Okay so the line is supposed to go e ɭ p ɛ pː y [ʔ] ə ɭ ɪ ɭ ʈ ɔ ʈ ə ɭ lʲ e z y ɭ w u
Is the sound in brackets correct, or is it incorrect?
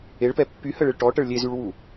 incorrect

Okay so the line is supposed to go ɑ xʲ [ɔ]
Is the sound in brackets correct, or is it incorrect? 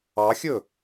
incorrect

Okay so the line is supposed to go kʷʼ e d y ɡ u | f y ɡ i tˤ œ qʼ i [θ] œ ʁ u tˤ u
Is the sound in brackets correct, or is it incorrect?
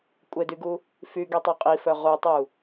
incorrect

